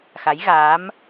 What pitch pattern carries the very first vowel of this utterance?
rising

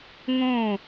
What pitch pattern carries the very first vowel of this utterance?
falling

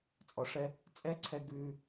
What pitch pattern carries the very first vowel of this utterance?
low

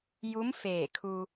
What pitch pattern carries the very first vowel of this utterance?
rising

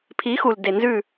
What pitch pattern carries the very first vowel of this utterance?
rising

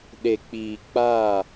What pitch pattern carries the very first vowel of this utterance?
low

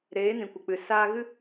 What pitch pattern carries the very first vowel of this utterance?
rising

